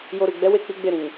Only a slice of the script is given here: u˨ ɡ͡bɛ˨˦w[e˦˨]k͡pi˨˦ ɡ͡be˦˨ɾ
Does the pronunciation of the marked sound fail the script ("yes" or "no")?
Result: no